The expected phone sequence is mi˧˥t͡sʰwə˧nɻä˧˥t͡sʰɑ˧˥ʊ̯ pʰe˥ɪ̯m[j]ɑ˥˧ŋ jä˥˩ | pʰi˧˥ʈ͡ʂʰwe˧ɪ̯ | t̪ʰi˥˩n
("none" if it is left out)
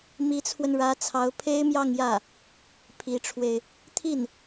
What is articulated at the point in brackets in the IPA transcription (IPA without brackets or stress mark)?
j